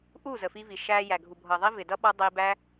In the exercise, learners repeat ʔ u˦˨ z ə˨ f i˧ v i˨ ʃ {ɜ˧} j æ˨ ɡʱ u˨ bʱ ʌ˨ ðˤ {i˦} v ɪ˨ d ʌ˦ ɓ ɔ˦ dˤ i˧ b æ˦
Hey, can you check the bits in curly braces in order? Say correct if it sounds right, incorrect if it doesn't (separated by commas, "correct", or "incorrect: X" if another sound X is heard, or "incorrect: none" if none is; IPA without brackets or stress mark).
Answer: incorrect: æ˧, correct